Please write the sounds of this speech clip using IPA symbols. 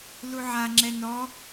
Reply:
luʕaŋ͡ǁɛ nɔ

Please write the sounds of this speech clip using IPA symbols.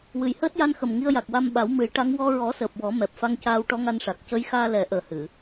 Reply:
wɨ˨˩jhəː˦˥t̚ ja˧nxə˨˩m ŋi˧ə̯ja˨˩k̚ wa˧mɓa˨˩˦wmɨ˨˩˦jʈa˧˥ŋ wɔ˧ ɹɔ˨˩˦səː˨˩p̚ wɔ˨˩˦ mɛ˨˩p̚fa˧ŋcaː˧w ʈɔ˧˥ŋa˧nʂa˨˩k̚ cə˧˥jxaː˧lɛ˨˩˦ ʔəː˨˩hɨ˨˩˨

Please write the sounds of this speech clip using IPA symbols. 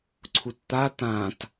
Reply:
ǀʰutt̪a t̪ãt

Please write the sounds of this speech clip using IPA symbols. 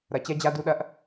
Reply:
ɾɐ˨ t͡ɕɛ˦d͡ʑa˦du˦ɗɐ˦ʔ

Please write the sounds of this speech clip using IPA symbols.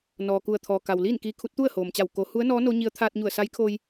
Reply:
nɔː˩ku˧˩ə̯t̪ʰɔː˩ka˩w liː˥˨nkiː˧kʰu˧˥t̚ t̪u˥˨ə̯hoː˩mt͡ɕa˧˩w ko˩˧ hu˧˥ə̯nɔː˧˥ no˧˥ɲi˧˥ə̯ t̪ʰaː˧t̚ɲu˧˩ə̯sa˧˥jkʰoː˧j

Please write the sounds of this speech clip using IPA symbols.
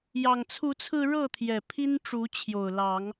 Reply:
jɑ˨˩ŋ t͡sʰu˨˦t͡sʰɹ̩˧ ɻɤ˥˨t̪ʰjɛ˨˩ pʰi˦n ʈ͡ʂu˨˦t͡ɕʰjo˨˩ʊ̯lɑ˨˦ŋ

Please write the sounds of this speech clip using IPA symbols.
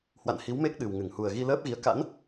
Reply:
hwa̰˧˨nhi˨˦wme˦˥k̚ ɗɨ˨˩wŋɨ˧˩ŋ hu˨˩ə̯ɣi˧ləː˦˥p̚ɣi˨˦ə̯ ka̰˧˥n

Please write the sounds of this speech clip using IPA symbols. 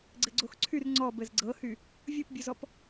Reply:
ɡ͡ǀɘɡ͡ǀoxǀʰyr ŋ͡ǀɔb ɘzɡ͡ǀɤhy | vʲupbʲuzɔp

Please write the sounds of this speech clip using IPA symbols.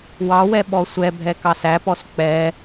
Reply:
wɑwɛ ɓɔsʷɛbʱɛ kɑsæpɔs k͡pɛ

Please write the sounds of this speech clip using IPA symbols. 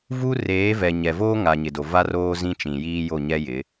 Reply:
vu˦reː˨˦vɛ˨ ɲɛ˨voː˦ ŋa˨ɲɪ˨do˨ va˦roː˦ zĩ˦ t͡ʃĩ˨jiː˦jo˦˨ ɲɛ˦jɪ˨˦

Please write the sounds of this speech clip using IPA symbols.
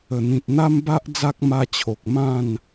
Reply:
ə˨˩n̪ĩ˨t̚ n̪a˦mba˦ʔ d͡za˦k̚ma˧t͡ɕʰo˨k̚ mã˥˧n

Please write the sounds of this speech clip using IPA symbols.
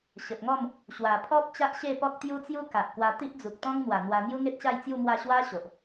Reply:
ɕə˨p̚ŋɔ˥˧m | ɕwa˨˩pʰɔ˦p̚ t͡ɕa˦ʔɕe˥˧pɔ˦k̚ t̪ju˦t͡sju˦ ka˨ʔkwa˧ t̪i˦ʔd͡zu˨k̚ t̪ɔ̃˦ŋn̪wa˨˩ n̪wa˧ n̪ju˦ŋe˦t̚ɕa˥˧jt͡sju˥˧ mwa˥˧ ɕwa˦ ɕo˨ʔ

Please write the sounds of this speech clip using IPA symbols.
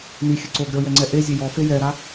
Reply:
nixʲɘ ǀoɡɾʲɔ jɛŋ͡ǀɛʔezʲe jɔfe jɛɾa

